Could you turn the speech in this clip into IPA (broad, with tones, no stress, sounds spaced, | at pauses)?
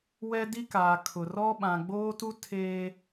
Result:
w ɛ˦ d i˦ k aː˨ kʰ ʊ˨ r ɔ˦ ɓ ã˨ ɡ͡b oː˦ t u˦ tʰ eː˦